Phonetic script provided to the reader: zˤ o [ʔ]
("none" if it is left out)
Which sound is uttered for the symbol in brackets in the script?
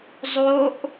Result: ʔ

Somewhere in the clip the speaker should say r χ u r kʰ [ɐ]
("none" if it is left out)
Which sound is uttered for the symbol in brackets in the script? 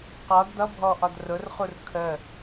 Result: ə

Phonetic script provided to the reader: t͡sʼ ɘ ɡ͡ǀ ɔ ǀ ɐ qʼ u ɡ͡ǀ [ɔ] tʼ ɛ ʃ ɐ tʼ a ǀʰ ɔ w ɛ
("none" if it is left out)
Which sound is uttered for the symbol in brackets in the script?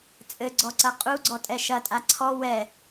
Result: ɔ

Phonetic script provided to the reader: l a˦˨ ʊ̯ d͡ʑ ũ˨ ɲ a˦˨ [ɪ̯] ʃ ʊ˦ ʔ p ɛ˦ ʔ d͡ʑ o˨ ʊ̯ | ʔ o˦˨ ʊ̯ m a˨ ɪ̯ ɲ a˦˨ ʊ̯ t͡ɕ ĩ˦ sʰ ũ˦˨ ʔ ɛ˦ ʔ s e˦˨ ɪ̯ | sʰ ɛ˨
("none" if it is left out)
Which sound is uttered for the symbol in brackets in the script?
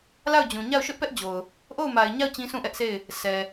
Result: ʊ̯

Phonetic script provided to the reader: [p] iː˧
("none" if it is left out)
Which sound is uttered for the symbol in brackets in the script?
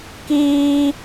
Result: k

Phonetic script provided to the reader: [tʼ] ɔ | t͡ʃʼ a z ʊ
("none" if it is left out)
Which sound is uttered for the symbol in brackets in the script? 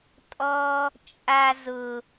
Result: tʼ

